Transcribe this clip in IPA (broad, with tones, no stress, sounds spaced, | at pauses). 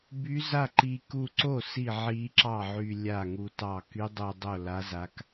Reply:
b y˧˥ z a˥˩ ǃ i˧ k u˧ ǀ o˥˩ s i˥˩ ʕ i˧˥ ǁ ɑ˥˩ ʕ y˧ lʲ a˥˩ ŋ u˧ t ɑ˥˩ k y˧˥ dˤ u˧ dˤ o˥˩ l a˧˥ z a˧˥ k